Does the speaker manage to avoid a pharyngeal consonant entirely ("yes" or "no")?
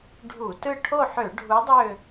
no